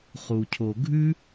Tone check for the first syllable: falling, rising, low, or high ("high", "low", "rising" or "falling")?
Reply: low